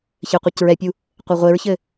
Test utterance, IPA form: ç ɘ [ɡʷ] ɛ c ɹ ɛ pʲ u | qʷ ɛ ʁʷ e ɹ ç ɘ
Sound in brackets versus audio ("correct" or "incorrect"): incorrect